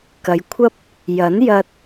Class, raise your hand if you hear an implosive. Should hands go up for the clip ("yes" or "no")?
no